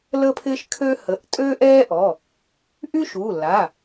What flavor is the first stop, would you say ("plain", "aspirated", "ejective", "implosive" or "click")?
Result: aspirated